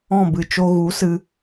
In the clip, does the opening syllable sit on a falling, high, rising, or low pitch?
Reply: falling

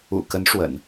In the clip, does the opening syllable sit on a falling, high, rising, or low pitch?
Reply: low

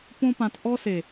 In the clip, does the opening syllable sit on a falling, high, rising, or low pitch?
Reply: high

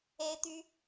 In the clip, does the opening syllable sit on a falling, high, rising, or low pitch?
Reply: high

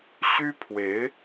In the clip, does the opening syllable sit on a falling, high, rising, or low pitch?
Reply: high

